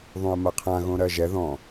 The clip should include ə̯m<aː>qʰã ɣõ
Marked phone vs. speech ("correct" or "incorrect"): incorrect